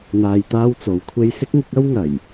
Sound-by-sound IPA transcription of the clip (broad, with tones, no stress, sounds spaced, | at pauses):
n̪ aː˧ j t̪ aː˥ w t͡s o˨ w kʷʰ e˥ j s ɪ˥ k̚ ŋ ɪ˨˥ k̚ ɐ˥ w ŋ ɐ˨˩ j